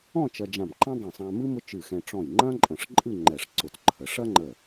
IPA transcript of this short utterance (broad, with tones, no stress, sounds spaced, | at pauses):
ɔ̃˥˧ t͡ʃ ɐ˧ d͡ʒ ã˧˩ m ǃ ã˥ dˤ ə̃˧˩ sˤ ã˧ m ɨ˥ m ʊ˥ t͡ʃ ɨ˧˩ x ɛ̃˧ ʈ͡ʂ ɔ̃˧˩ j ŋ͡ǃ ɐ̃˥ ǃʼ ə̃˧˩ ʂ ǃʼ ɨ˥˧ ŋ͡ǃ ɛ˧˩ ʂ ǀ ʊ˧˩ t ǃʰ ə˩˧ ʂ ɐ˥ ŋ͡ǃ ə˧˩